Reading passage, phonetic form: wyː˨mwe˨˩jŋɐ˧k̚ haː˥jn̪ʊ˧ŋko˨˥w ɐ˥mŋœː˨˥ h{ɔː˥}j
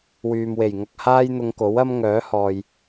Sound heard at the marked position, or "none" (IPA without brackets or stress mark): ɔː˨